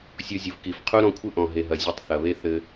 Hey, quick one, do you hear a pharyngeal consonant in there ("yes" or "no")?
no